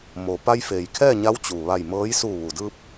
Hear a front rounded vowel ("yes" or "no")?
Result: no